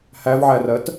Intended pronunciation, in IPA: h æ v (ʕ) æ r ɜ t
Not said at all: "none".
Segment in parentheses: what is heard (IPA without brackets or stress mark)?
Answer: ʕ